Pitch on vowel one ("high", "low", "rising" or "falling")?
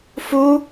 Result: high